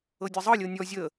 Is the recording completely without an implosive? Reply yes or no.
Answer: yes